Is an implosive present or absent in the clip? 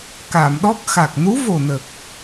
present